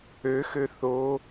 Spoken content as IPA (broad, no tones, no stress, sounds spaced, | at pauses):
ø x ø θ o